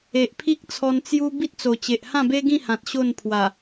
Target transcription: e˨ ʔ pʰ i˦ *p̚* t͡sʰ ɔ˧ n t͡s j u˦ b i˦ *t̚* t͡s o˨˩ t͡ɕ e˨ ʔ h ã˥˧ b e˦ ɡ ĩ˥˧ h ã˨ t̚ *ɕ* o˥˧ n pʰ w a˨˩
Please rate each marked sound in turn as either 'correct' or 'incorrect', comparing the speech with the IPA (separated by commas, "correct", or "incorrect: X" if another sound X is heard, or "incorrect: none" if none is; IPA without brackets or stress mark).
incorrect: k̚, correct, correct